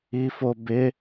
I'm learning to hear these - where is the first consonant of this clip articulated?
lips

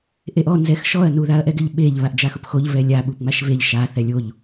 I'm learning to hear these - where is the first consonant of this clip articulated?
throat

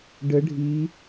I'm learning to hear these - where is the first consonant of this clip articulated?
retroflex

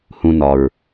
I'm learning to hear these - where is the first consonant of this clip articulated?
throat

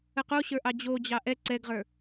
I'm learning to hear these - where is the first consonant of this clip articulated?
uvula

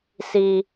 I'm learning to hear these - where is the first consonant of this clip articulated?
tongue tip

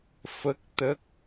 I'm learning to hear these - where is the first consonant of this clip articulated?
lips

